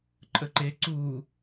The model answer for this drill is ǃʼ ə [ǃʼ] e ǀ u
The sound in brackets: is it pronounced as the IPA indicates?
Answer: no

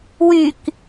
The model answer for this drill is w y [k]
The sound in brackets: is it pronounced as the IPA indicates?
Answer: yes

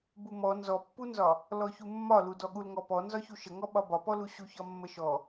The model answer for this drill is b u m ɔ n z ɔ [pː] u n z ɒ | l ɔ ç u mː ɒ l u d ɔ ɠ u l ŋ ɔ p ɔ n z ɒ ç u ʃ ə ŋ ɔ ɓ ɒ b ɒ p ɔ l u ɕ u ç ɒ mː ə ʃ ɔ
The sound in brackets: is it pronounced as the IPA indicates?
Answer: yes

